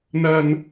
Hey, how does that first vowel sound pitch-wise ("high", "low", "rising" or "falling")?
low